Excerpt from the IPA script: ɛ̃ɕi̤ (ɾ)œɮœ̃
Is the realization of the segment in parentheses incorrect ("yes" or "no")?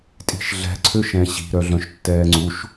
no